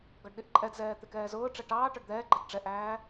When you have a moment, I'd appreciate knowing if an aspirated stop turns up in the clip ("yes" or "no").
no